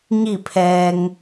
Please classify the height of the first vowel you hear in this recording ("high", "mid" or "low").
high